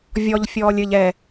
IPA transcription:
vʲɔʎ fʲɔːlʲɘʎ ɛ

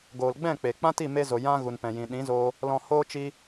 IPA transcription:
ɡoː˨lɡ͡bɛ̃˦˨k͡pe˨ k͡pã˦ti˦˨me˧zo˨ jã˧ ɣu˨npɛ̃˨jĩ˨ ɗĩ˨˦zoː˧ | lɔ̃˨ hoː˧ t͡ʃi˧

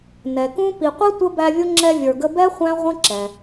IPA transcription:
nɛ˩kũ˥ pi˨qʷi˥ tʷə˥bæ˦vʲʊ˥ ŋ͡ǁɛ˦vʲə˞˨ɡə˦ bɛ˥ χʷæ̃˥ʁʷə̃˥ǁɛ˩

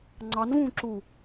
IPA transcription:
ŋ͡ǀɑn vũǁu

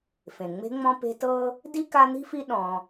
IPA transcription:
fẽ˩ŋ͡me̤˦ŋ͡mɔ̃˦ pe̤˦tɤ˥ | di˥ ka˦n̪i̤˥fi˦ ɗɔ̃˨

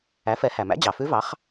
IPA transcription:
æ˩˥fɛ˩˥hæ˩mæ̰˧˥ d͡ʑɑ˩fʉ˧˥vɑ˩˥χ

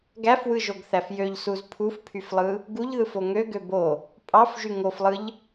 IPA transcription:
ɡæfwɯʒoɡθæf jøʎsuz pʰufpʰyflˠɯ | ɡuʎðɯfo ŋøɡø bo | pʼɑfʒy ŋoflˠɯʎ

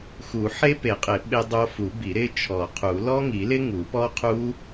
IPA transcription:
xu˨˩˦ħe˦˥pe˨˩˦qʼɪ˨˩˦ ɓɪ˦˥dˤo˦˥ fu˨˩˦ bi˨˩˦ɾɪ˦˥ t͡ʃʰɔ˨˩˦qʰu˨˩˦ lɔ˦˥ŋi˨˩˦lɪ˦˥ ŋu˨˩˦pɔ˦˥qʰu˦˥

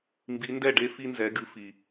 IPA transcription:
mbi˨˦ndɛ˥˩ɖe˦ fi˦nzɛ˨˦ɡɨ˨˦fi˨

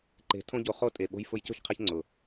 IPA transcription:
ǃe̤˨˦ tʰõ˦ɟo˧χo˦ tʼe˨ ɓo̤˧j fʊ˧jco̤˦çqʰe˧ç ŋ͡ǀʊ˨

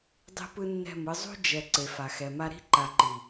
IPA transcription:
dˤi̤˦pɯ˦nːɛ̤˦˨mɯ˦ zˤṳ˦ d͡ʒɛ˨ ǀe˨fa˨xɛ˨ma˦ ɾi̤˦ǃa˨ǃi˨

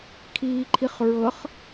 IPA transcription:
kʰiːǃʰiχ ɹɤχ

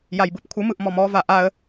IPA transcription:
jajbɯpkʷʰɯmɯʔ mɔmɔva ʔaə̯

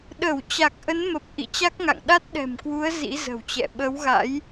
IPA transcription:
ɗə˧˩w t͡ɕa˨˩k̚ʔə˨˦nmə˨˩p̚ ʔḭ˧˨t͡ɕa˦˥k̚ŋa̰˧˨ŋ ɗa˦˥t̚ɗɛ̤˨˩mkwu˨˦ə̯ zḭ˧˥zə̤˨˩wt͡ɕɛ̰˧˨ ɓə˨˦wɣa̰˧˥j

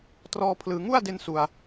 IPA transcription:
trɔː˧pʰlɯː˩˦ ŋu˥˩a̯de˧n su˧a̯

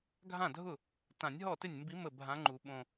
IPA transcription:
ɡʱã˥˩dʱʊ˥˩ | tã˨˩˦nʲ ɦɔ˥˩ tɪ˥˩nʲmbi˧˥ mə˥˩bʱã˧˥ŋ͡ǃu˨˩˦ ɓõ˧˩

